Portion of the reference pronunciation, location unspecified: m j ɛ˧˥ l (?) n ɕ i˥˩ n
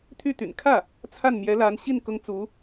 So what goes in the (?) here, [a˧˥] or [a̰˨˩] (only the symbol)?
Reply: a˧˥